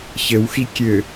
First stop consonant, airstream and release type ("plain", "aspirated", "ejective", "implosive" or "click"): plain